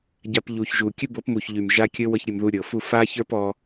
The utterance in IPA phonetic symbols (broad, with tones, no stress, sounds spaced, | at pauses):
ɟ a˧ p ʎ u˨ ç ʒ u˨ kʲ ɘ˦ b ɤ˨˦ p m u˨ ç ʎ y˨ m ʒ a˦ kʲ ə˦ w ɤ˦ ç ɾʲ ə˧ m ð u˧ ɾʲ ɤ˨ f u˦˨ f a˦ ç ə˞˦ p ɔ˧